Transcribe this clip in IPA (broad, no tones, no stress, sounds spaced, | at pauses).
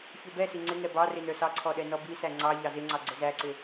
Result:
ç u b ɛ s i ŋ͡ǀ ɪ ŋ ɛ b ɑ r ɪ n ə˞ s ɑ ǀʰ ɔ ɗ ɛ n ɔ b i s æ ŋ͡ǀ ɑ ʎ ɑ z ɪ ŋ͡ǀ ɑ ɡ͡ǀ ə z æ ǀ ɪ